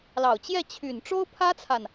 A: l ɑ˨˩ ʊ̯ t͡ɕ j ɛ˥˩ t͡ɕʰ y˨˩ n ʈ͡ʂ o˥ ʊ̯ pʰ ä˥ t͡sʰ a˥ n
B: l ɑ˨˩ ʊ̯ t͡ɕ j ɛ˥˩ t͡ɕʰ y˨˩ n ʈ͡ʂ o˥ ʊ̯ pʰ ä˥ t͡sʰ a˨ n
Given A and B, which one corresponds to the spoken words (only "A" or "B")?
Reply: B